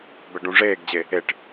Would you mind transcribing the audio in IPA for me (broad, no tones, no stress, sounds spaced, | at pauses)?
b ɛ ɖ ũ ʐ eː ɡ d͡ʑ e | e ʈ